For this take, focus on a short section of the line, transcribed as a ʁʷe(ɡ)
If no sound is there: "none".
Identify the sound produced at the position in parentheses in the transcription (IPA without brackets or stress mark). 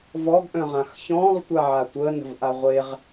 ʁ